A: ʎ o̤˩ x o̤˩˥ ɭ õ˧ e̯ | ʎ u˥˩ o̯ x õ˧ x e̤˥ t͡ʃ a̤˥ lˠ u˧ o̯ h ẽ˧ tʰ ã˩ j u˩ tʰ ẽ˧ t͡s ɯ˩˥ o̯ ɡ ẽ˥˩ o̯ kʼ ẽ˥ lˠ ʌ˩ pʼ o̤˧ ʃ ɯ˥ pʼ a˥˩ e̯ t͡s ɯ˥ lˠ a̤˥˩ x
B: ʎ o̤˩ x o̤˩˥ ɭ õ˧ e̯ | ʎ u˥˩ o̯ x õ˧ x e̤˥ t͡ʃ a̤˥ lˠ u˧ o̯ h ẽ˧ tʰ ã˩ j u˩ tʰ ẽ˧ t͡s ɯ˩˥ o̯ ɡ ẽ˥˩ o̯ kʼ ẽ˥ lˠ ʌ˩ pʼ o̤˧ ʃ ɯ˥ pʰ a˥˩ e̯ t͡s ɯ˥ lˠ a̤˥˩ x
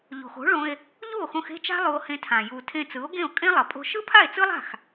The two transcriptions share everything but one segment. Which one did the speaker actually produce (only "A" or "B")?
B